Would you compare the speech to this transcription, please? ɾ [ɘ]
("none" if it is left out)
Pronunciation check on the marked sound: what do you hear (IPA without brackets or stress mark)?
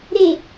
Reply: e